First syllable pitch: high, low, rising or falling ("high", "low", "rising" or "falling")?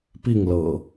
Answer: falling